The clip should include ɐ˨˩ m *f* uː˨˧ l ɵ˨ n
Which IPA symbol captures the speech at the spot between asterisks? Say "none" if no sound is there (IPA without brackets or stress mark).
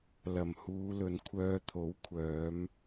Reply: h